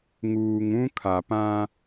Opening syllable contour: low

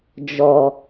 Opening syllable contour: low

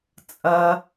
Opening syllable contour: low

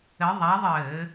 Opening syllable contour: rising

